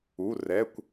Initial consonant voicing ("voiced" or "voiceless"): voiced